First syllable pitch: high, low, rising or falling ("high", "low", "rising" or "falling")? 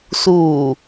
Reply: low